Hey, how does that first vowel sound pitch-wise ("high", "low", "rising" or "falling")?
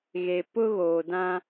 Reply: low